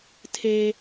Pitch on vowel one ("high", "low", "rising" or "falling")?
high